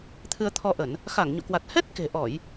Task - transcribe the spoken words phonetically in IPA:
t̪ʰ ɨ˧ ə̯ t̪ʰ ɔ˧ ʔ ə˧˩˨ n | x a˧˩ ŋ ɲ o̰˧˨ k w a˨˩ t̚ h ɛ˦˥ t̚ k e̤˨˩ ʔ ɔ˧˩˨ j

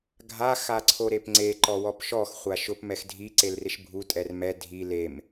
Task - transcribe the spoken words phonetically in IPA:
ɡʱ a x a ǀʰ o ɾ e p ŋ͡ǀ e ǃ ɔ w ɔ p ʃ ɔ x χʷ a ʃ ʊ p m ɛ x dʱ i ǀ e l r ɪ ʃ bʱ u tʼ ɛ r m ɛ dʱ i l e m

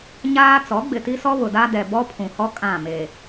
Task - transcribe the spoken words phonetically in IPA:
ɲ aː˦ t͡s ɔ˨˦ ɡ͡b ɪ˨ t i˦ s ɔ˦ β ʊ˨ d a˦ d ɛ˨ b ɔ˦ pʰ ũ˨ h ɔ˦ kʼ ã˦˨ m e˨

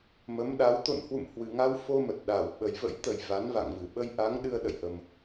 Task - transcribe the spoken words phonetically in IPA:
m ə˨˦ m ɗ a˨˦ w t̪ o̰˧˨ n h w ṵ˧˨ m h w ɨ˨˩ ŋ a˧ w f o˧ m ə˨˩ t̚ ɗ a˧˩ w ɓ ə˨˩ j v ə̰˧˥ j t̪ ə˨˩ j v a˨˦ n v a̰˧˨ ŋ v ɨ˧˩ ɓ ə˧ j ʔ a˨˦ ŋ ɗ ɨ˧ ə̯ ɗ ə̰˧˨ j ʔ ə˨˩ m

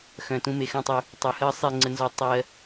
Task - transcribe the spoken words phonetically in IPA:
x œ̃˨ t ũ˧ m e˨ x œ̃˦˨ tˤ ø˧ | tˤ u˨ h ɜ˦ sˤ e˦˨ ŋ͡ǀ ə˧ n z ɔ˦ tˤ ɜ˦

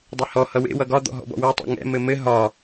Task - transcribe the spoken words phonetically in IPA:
dˤ e h ɔ h ʌ w ḛ w ʌ ɡ ɒ d̪ ɔ̰ ɦ ɔ̰ b ɔ̰ w ɛ tˤ ɛ̰ ŋ ɛ̰ m ɘ m ɘ ɦ ɒ

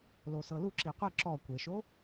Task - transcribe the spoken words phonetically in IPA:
l o s ɤ l u ǁ i qʷ ɯ ǁ ɔ kʷ e ʃ o

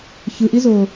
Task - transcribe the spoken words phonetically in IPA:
ç ɯ ʔ i z oː

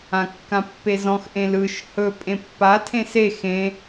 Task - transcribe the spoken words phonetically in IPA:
ã kː ã pː e z ɔ̃ x ʔ ẽ l ɯ ʃ h ɵ pʼ ẽ pː a tʰ ẽ s e x ẽ

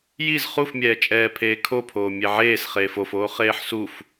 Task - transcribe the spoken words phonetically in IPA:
j i z χ u f mʲ ɛː t͡ʃʼ ɛː pʰ eː kʰ o pʰ oː mʲ e ʕ eː s χ eː f o f oː χ eː ħ s u f

